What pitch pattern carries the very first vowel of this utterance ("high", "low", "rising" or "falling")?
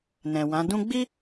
low